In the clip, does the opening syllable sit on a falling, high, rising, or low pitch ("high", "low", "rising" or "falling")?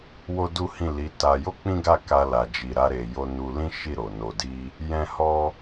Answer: high